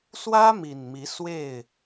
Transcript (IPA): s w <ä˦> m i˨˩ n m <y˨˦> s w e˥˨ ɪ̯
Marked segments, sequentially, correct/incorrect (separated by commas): correct, incorrect